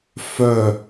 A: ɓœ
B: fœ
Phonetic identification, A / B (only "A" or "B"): B